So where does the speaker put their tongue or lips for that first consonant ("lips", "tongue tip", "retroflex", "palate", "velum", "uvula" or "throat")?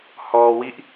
throat